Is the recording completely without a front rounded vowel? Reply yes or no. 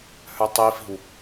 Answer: no